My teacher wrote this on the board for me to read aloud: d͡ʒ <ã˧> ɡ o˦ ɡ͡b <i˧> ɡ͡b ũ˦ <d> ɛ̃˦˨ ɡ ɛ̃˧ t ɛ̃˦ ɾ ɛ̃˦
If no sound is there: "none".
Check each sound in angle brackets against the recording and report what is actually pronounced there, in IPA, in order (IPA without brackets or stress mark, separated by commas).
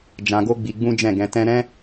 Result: ã˧, i˧, d͡ʒ